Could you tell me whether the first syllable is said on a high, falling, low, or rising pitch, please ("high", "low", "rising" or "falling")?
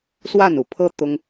falling